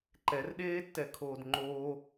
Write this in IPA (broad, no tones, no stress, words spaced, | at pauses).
ǃɛrɗeːtːɛkʰoːd ŋ͡ǃoː